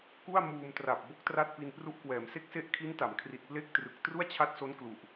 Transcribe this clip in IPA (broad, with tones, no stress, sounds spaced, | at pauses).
k u˥˩ a̯ m uː˧ m t r a˨˩ p̚ b o˥˩ k̚ t r a˥˩ t̚ p i˧ n p r u˦˥ ʔ k w ɛː˩˦ m s e˦˥ k̚ s e˦˥ ʔ kʰ i˦˥ n t a˩˦ m kʰ r i˨˩ t̚ p l e˥˩ k̚ t r ɯ˨˩ k̚ t r u˥˩ a̯ t͡ɕʰ a˦˥ t̚ s o˦˥ n k l u˨˩ ʔ